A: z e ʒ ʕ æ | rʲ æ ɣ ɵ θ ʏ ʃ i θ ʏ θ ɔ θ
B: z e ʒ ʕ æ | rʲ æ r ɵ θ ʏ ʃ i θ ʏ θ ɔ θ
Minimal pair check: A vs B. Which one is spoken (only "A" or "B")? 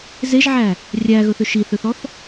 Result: A